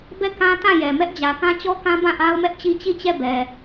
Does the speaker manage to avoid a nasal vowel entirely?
no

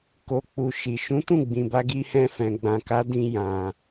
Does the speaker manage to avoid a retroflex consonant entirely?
yes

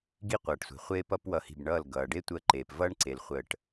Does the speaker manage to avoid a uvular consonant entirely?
no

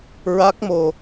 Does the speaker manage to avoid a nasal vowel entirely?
yes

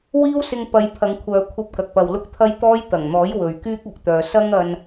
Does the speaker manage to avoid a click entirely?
yes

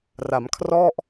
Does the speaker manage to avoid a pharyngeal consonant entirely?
yes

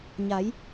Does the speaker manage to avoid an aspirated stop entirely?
yes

